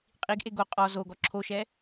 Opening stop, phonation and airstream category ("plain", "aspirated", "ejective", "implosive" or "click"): ejective